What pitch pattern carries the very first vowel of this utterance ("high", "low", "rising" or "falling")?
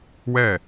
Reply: falling